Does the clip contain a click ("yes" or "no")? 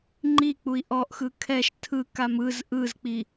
yes